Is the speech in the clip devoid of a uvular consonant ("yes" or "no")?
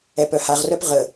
no